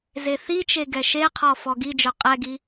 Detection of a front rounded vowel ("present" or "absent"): present